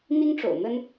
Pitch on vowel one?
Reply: high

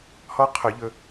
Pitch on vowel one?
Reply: high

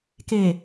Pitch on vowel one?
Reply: low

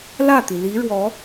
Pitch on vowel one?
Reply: falling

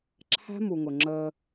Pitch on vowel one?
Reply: high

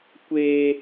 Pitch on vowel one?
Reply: high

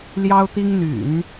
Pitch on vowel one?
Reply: high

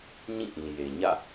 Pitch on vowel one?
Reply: falling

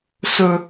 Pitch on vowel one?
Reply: low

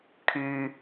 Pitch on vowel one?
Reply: low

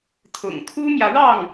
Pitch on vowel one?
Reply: low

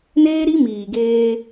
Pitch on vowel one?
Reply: high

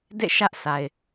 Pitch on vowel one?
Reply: falling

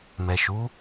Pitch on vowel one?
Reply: low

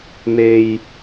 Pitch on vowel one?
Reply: low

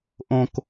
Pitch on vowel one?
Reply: low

